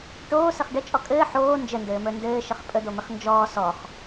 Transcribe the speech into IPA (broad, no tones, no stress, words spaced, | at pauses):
ʈoːsəχ ɖət͡ʃʼɔ kʼɘː ħoː nd͡ʒəndɘːmə˞ ndɘːʃəχ pʼəd̪omɘχ nd͡ʒɔː sɔχ